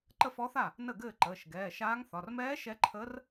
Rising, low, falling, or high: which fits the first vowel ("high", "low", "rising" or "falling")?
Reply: falling